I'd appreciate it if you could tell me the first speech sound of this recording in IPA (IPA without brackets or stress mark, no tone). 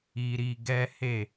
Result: i